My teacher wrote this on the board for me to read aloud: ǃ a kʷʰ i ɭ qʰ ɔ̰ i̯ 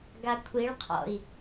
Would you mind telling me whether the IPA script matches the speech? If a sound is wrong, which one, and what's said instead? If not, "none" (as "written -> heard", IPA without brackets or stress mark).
ǃ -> ɡ